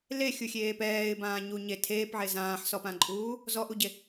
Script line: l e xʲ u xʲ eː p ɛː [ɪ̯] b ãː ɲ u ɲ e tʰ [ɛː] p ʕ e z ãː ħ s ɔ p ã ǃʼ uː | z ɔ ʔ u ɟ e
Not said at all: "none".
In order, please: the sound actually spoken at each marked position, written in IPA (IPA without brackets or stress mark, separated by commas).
ɪ̯, eː